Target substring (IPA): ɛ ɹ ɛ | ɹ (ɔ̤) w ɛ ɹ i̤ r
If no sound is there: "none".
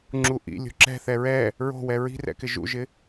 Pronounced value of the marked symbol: o̤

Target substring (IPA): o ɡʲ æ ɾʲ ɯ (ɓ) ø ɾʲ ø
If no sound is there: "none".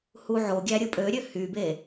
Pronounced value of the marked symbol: pʼ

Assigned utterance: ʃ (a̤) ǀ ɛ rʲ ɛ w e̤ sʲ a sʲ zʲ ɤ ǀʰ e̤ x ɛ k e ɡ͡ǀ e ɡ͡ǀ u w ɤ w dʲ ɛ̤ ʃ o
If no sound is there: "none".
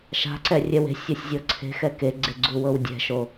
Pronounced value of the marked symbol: a̤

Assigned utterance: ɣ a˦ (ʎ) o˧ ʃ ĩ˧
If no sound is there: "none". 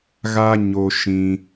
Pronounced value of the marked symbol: ɲ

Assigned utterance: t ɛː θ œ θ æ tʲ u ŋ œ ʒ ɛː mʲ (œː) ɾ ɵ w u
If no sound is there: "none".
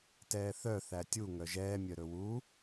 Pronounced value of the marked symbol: œ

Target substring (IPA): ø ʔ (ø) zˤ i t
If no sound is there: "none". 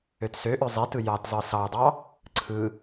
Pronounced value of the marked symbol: ø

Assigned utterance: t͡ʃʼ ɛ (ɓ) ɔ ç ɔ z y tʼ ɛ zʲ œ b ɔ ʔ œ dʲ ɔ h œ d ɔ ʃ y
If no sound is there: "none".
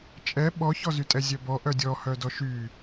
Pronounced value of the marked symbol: ɓ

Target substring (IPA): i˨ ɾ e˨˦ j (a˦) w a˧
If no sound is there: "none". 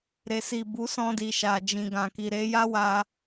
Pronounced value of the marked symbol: a˦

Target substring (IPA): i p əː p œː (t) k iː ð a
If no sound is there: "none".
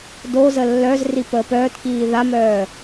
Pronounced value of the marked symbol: t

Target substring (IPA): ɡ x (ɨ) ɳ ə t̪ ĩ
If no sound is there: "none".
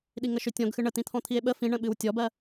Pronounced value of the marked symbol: ɨ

